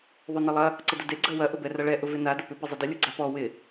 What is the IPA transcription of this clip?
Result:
ðˤ ʏ n ə lˠ ɐ | ǀ ə d ʊ d e ɡ͡ǀ ɐ w ɐ ʔ ʊ b ɛ r ɐ ɭ ɛ ʔ ʊ v ɪ n a d ʊ p ʏ p ɪ zˤ ə d ə lʲ ʊ ɡ͡ǀ a p ɔ w ɪ

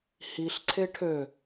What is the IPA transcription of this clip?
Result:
h i ɬ ǀʰ e ʈʰ ø

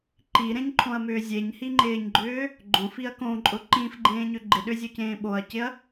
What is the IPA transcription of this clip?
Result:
ǃ i ɾ ẽ ɲ ǃʰ õ ɐ̯ m ʏː zʲ e ɲ h i ŋ͡ǃ ɪː ɲ ɡ͡ǃ ʏː | ɡ͡ǃ õ f i ɐ̯ k õ ǃʼ ʊ ǃ ĩ f ɡ͡ǃ ẽː ɲ ʏ ɡ͡ǃ ɪ ɗ ʏ zʲ o c ẽː ɓ o ɐ̯ c ɪ ɐ̯

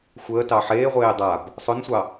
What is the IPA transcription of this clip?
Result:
xʷ əː t ɑ ħ eː ʁʷ eː dˤ a b | sˤ ɵ n sʷ ɑ

